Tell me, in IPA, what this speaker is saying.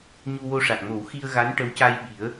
ɲ u˧ w o˧ ʂ a˨˩ k̚ m o˨˩˦ w x i˧ ə̯ ɣ a˧˥ n ʈ ə˧˥ w c a˧ j ɓ i˨˩˦ ə̯

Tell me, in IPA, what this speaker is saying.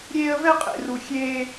ɾʲ eː˥ ə̯ v ɛ˥ qʼ ḛ˧ r u˧ xʲ eː˥

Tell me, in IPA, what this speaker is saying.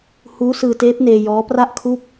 h uː˦˥ s ɯː˧ t eː˦˥ p̚ n eː˧ j ɔː˦˥ p r a˥˩ ʔ kʰ u˥˩ k̚

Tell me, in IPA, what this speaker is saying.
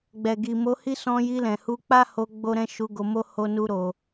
ɡ͡b ɛ˨ ɡ i˨ m o˧ h i˦ s ɔ̃˧ j i˧ l ɛ̃˨ h u˧ k͡p a˦ h o˧ ɡ͡b o˦ ɾ ɛ̃˦ ʃ u˧ ɡ o˧ m o˦ h o˦ n u˦ ɾ o˧

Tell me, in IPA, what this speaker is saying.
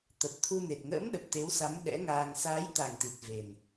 t̪ ə˨˩ p̚ t̪ʰ u˧ n e˨˩ t̚ ŋ ə̰ː˧˥ m ɗ ə˨˩ p̚ t̪ e˨˦ w s a˨˦ m ɗ ɛ̰˧˥ ŋ aː˧ ŋ s aː˨˦ j t̪ a˨˩ ŋ t̪ i˨˩ t̚ v e˨˩ n

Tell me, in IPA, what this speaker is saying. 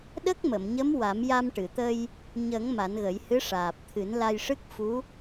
ɗ ə˦˥ k̚ m ə˨˩˨ m ɲ ə˧˥ m w a˨˩˦ m j a˧ m ʈ ɨ˨˩˨ t̪ ə˧ j | ɲ ə˨˩˦ ŋ m a˨˩˦ n ɣ ə˨˩˦ j h ɨ˧˥ ʂ aː˨˩ p̚ t̪ʰ ɨ˨˩˦ n l a˧ j ʂ ɨ˦˥ k̚ f u˧˥

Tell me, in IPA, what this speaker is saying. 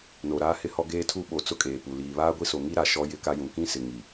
n o˨ ɾ aː˦ h ɪ˦ h ɔ˦ ɡ eː˦ tʰ u˦ ɓ o˨ t͡s ʊ˦ kʼ eː˨ p u˨ l iː˨ β aː˦ ɡʷ i˦ s o˨ ŋ i˦ ɾ a˨ ʃ ɔ˦ j ɪ˦ k a˦ j ũ˨ k ĩ˦ s ɪ˨ ŋ i˨

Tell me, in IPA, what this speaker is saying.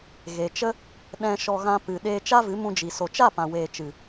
ɣ e˨ t͡ʃ ə˦ | ɗ ɛ̃˧ ʃ ɔ˧ ɣ ã˧ p ɨ˨ ɗ eː˧ t͡ʃ a˦ v ɨ˨˦ m ũ˧ d͡ʒ i˨ s o˨ t͡ʃ a˦˨ p ã˨ w eː˨ t͡ʃ ɨ˨

